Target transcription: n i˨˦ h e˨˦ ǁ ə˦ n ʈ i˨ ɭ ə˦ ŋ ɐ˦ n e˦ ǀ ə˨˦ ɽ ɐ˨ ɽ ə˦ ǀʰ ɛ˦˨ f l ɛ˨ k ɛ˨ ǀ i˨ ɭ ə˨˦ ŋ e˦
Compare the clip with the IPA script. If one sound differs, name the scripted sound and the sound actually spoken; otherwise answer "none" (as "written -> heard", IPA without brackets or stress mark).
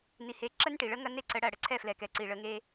none